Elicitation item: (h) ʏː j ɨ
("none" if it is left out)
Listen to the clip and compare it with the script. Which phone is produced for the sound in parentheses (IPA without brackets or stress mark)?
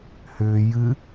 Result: h